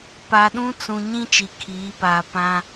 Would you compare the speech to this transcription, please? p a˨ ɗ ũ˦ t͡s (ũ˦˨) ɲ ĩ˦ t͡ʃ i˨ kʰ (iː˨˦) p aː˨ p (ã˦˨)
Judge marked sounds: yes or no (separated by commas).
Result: no, yes, no